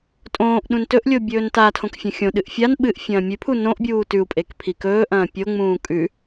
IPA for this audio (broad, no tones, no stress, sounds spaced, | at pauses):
tʼ õː ʔ ɗ ũ n t ɵ ʔ lʲ o bʲ ɵː n t a tʰ õ k fʲ ɐ̃ xʲ õ ɗ ɨ ʔ fʲ a n ɓ ɨ ʔ fʲ ɐ̃ː mʲ ʉ pʰ u n õ ʔ bʲ uː t ʉ u̯ pʼ e k pʰ i k ɵː ʔ ɐ̃ː pʲ o ŋ͡m ũː kʼ ʉ